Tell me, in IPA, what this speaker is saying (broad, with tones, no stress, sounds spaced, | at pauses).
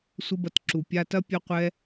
sʷ ə˦ b ɐ˧ t ǁ u˨ pʲ a˧ t ɐ˦ pʲ ɐ˦ qʷ ɛ˦